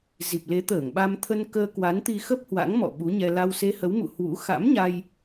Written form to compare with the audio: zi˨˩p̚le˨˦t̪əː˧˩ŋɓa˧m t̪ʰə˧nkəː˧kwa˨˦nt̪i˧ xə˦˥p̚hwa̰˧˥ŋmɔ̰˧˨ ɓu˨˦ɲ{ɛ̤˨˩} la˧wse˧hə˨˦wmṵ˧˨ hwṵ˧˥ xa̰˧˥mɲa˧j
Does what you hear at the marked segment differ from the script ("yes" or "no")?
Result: yes